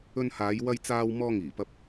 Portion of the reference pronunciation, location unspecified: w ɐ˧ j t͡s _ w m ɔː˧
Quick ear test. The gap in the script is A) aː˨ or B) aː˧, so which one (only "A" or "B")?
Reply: B